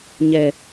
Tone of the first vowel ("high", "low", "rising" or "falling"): low